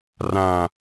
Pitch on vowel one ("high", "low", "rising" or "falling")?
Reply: low